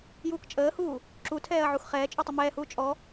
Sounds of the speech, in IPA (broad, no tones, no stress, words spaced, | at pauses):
juːkt͡ʃʼəːhuː | ǁutʰɛːɐ̯ ʕuxχɛːt͡ʃʼutˤə mɛːhuː t͡ʃʼɔ